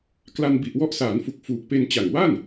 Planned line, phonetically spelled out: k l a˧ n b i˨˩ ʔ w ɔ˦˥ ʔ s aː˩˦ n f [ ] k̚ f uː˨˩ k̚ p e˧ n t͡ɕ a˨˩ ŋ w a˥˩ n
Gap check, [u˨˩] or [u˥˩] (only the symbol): u˨˩